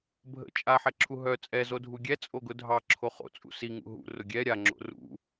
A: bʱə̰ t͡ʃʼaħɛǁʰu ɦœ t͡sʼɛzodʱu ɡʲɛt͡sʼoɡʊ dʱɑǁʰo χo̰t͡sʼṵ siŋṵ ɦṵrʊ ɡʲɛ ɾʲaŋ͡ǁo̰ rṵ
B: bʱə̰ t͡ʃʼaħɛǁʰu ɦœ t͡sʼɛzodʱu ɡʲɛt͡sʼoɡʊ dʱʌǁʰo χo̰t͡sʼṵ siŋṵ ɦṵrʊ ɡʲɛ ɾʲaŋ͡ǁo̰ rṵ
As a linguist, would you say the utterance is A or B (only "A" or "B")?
A